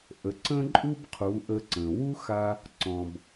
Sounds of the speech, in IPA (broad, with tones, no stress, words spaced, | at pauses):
ʔə˩˧ǀə̃˥ǃʼu˥bqʰu˩˧ ʔə˧ǀə̃˩ wu˥ xa˧ | ǀɔ̃˩b